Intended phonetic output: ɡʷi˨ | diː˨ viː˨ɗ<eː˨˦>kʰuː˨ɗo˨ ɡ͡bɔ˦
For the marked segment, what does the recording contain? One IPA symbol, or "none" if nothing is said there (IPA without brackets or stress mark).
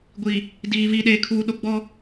eː˨